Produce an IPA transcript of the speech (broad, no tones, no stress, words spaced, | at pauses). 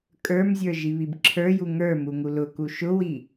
kʼə˞mzʲə˞ ʒiβibǁʰə˞ju ŋə˞ muŋulʊku ʃʊwi